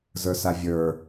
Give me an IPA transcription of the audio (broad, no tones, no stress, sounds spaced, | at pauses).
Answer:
z ə˞ s a vʲ ə˞